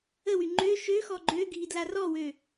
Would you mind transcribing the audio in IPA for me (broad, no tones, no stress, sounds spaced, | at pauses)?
ə w y ŋ͡ǃ ø ʃ ø x ɔ ɡ͡ǃ ø ɡʱ i d l a r ɔ w ø